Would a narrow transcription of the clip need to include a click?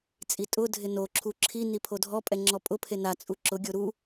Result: yes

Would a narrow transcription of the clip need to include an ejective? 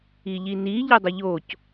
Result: no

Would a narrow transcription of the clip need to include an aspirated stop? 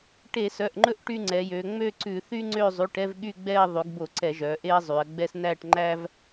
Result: no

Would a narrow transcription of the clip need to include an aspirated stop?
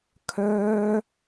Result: yes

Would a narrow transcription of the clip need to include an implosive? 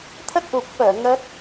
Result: no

